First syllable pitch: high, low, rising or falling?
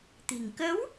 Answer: low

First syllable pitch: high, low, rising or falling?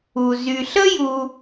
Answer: low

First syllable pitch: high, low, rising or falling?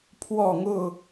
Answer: falling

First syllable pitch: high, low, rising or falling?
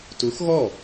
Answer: rising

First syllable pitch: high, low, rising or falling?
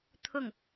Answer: falling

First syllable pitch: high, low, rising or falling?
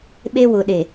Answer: high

